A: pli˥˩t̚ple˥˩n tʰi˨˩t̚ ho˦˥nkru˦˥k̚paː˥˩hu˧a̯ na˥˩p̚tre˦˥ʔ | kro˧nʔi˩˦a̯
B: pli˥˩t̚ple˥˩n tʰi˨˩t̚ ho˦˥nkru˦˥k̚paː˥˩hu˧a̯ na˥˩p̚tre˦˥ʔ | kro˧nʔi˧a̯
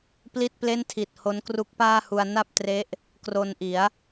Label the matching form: A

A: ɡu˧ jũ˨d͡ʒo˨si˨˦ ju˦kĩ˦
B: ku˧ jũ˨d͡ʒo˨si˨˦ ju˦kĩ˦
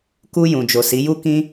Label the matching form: B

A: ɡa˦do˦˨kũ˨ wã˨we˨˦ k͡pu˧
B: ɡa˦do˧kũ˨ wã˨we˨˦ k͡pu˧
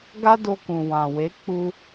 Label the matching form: B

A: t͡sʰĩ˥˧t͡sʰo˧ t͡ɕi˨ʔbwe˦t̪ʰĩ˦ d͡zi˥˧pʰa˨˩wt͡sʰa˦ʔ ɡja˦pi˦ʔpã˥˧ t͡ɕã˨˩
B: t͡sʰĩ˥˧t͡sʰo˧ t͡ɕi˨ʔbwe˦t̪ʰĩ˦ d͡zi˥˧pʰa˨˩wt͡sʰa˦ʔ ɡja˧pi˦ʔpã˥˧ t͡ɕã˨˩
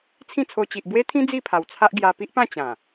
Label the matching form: B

